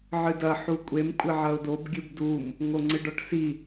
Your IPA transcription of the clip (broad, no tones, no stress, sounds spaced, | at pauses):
ʕ ɨ d ɐ ħ u kʷʼ e m kʷʼ ɘ ʕ ɐ ʊ̯ d o b ɡʲ ɨ b d u m | ŋ o ŋ͡ǀ ɨ ɖ ɔ ʈ s i